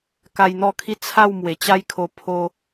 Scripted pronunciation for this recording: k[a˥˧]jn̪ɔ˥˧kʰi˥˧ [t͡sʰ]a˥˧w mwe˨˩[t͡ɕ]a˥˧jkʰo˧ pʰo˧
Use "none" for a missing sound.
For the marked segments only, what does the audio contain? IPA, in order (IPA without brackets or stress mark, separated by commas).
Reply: a˧, t͡sʰ, t͡ɕ